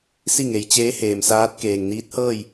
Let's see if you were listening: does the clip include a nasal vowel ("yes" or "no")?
no